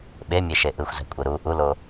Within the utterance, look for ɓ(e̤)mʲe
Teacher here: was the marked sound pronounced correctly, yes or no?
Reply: no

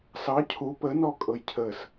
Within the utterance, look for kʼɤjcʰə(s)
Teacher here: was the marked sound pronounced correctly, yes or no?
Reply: yes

